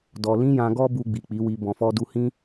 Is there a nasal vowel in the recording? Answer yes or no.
yes